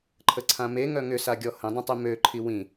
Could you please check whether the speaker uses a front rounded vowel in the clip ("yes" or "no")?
yes